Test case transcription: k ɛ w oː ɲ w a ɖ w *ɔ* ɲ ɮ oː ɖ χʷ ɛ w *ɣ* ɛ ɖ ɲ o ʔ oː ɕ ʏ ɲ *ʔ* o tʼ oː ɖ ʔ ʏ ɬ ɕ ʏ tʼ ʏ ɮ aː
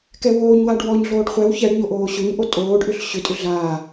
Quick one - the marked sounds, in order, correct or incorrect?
correct, incorrect, correct

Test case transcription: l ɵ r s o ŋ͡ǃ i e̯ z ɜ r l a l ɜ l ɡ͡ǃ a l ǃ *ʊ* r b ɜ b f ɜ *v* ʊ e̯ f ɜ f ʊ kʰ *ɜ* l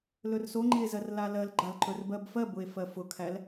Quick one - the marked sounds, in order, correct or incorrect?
incorrect, incorrect, incorrect

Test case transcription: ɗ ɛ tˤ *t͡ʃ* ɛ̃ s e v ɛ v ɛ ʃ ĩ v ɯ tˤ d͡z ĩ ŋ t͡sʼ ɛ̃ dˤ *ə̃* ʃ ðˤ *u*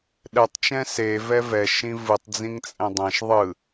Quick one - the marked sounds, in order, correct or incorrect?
correct, incorrect, incorrect

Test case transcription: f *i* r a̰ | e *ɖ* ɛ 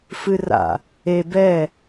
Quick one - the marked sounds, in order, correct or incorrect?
incorrect, incorrect

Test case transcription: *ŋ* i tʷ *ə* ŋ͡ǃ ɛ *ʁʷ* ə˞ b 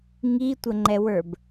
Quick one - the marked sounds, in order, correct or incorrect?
correct, correct, incorrect

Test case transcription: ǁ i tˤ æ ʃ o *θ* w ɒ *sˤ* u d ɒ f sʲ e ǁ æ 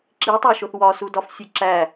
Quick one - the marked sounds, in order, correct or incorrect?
correct, incorrect

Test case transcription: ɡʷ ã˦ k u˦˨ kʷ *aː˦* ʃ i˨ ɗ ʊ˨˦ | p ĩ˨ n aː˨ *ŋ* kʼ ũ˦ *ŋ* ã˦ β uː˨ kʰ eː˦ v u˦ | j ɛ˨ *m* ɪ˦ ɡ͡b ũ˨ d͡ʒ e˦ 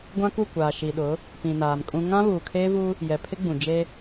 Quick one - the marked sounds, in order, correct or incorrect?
incorrect, incorrect, correct, incorrect

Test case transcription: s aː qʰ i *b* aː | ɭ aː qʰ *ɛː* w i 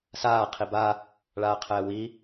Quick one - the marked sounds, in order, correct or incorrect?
correct, correct

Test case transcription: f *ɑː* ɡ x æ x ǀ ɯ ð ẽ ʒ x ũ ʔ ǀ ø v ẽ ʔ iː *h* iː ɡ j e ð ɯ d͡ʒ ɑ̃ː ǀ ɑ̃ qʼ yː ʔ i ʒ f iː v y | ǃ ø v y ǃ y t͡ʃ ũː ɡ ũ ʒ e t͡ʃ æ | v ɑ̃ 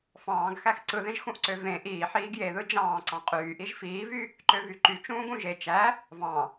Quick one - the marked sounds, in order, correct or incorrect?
incorrect, incorrect

